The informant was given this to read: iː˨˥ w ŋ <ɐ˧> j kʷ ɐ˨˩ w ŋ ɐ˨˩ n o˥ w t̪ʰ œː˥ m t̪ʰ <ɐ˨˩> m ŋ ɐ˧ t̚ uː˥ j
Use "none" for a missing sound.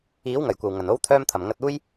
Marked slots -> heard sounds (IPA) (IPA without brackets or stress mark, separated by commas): ɐ˨˩, ɐ˨˩